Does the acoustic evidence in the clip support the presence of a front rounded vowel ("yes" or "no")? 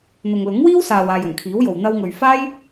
no